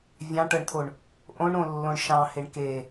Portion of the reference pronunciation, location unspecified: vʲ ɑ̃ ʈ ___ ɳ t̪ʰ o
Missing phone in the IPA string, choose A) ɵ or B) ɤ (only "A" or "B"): B